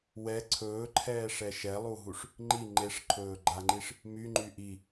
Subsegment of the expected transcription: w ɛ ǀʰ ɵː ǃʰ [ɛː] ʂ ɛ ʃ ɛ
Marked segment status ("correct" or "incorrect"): correct